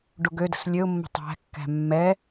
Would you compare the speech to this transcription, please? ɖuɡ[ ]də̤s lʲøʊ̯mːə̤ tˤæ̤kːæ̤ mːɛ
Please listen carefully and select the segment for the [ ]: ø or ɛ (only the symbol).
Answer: ø